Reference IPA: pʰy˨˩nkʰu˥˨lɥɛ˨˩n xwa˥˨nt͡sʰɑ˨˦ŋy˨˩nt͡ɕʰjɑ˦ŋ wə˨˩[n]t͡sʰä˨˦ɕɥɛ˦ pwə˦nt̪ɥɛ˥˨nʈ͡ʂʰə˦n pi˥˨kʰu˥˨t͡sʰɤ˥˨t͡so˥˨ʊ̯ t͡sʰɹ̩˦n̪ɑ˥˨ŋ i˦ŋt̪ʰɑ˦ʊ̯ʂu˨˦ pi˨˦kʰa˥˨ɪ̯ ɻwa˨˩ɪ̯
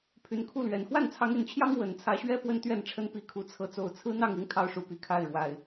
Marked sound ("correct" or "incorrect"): correct